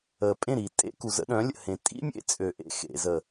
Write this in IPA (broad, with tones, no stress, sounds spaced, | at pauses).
əː˨ pʼ ẽ˦˨ ɾ iː˨ tʼ ḛ˦ k u˨ z ə̰˦ ɗ œ̃˨˦ lʲ ə̰˨ h ẽ˨ tʼ ḭ˦ mʲ ḛ˦ t͡sʼ ø˨ ʔ ḛ˦ x ḛ˨ z ə˨